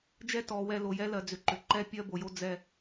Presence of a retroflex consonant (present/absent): absent